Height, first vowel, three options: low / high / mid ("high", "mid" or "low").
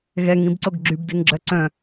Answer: mid